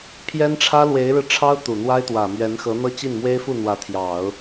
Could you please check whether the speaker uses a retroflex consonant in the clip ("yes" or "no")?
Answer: yes